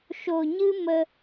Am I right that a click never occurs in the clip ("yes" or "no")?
yes